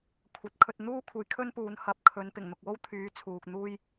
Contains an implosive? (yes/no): no